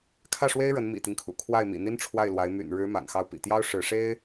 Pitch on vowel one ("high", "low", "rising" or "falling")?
falling